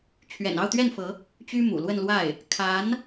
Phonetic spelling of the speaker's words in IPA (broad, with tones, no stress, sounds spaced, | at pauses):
t͡ɕʰ ɥ ɛ̰˨˩ n ɑ˥˧ ʊ̯ t̪ ɥ ɛ˥˩ n f ɤ˧˥ | t͡ɕ y˥ m ṵ˨˩ l w ə˥˧ n l w a˥˩ ɪ̯ | kʰ a˧˥ n